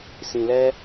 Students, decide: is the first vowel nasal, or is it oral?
nasal